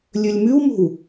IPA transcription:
lʲɵlʲmʉwmo̤w

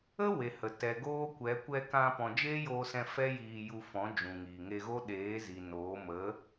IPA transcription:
ə˦ we˨hə˨ tɛ˨ɡoː˦kʷɛ˨˦ kʷɛ˧kã˧ pɔ̃˨d͡ʒeː˦joː˧sɛ̃˧ fɛ˦jiː˧ju˧fɔ̃˨˦ d͡ʒũ˨ŋiː˨ŋe˧ɣo˦ ɗeː˨˦zi˨noː˨˦ mə˨˦

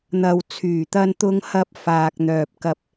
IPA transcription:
n̪ɐ˨w t͡sʰyː˨˩t̪ɐ˧nt̪ʊ˧ŋhɐ˧p̚ faː˨k̚n̪œː˨p̚kɐ˧p̚

